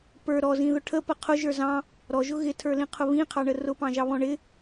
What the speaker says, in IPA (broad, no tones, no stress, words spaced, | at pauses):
pə˞ ɾɔzĩðʊ ʈʰəpə qʰʊʒə˞ zɑ̃ | ɾɔʒʊ ɣɪtʰə˞lĩqʰʊ βĩqʰɑɳə rʊpɑ̃ʒɑβɔ̃ ɳɪ